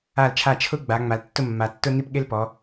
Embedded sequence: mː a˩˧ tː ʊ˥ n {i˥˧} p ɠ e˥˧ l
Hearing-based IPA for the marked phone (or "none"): i˥˧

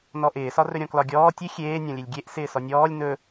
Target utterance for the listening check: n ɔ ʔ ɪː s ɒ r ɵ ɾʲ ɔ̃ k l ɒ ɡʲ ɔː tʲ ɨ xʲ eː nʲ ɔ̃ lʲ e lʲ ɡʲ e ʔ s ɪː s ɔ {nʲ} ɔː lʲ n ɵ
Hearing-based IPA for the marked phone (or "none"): nʲ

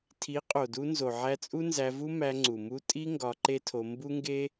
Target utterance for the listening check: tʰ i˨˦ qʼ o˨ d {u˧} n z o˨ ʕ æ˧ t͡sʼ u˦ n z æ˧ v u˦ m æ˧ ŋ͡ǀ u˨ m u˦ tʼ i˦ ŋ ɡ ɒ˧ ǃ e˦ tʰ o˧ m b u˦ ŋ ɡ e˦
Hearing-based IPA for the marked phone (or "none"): u˧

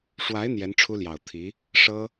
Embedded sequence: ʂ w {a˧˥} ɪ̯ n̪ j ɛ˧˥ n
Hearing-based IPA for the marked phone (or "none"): a˧˥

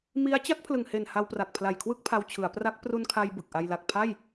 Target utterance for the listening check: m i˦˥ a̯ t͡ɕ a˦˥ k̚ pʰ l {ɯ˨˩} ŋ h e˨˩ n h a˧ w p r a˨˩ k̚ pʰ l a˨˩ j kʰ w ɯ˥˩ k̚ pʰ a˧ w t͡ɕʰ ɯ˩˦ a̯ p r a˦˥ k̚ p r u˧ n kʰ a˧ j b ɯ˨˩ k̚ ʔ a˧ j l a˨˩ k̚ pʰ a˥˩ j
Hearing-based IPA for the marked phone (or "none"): ɯ˨˩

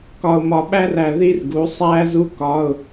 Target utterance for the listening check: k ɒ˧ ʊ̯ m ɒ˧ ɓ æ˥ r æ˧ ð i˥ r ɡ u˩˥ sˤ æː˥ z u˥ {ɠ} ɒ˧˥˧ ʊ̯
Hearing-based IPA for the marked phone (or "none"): k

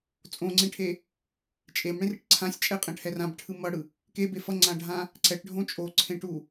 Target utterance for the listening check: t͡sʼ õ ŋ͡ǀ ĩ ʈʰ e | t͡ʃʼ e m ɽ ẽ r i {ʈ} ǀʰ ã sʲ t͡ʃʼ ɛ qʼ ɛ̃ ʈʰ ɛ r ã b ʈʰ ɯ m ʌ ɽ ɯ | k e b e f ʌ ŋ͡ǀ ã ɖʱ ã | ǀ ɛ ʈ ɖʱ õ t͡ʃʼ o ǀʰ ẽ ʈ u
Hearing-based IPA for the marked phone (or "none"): ʈ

